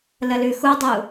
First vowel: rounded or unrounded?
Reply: unrounded